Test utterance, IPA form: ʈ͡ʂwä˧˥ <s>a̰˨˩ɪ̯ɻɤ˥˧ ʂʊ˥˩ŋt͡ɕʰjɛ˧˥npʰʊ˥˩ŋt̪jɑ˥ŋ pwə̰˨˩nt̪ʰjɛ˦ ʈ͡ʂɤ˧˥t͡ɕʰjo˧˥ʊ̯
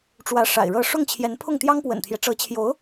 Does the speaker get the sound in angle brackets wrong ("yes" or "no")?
yes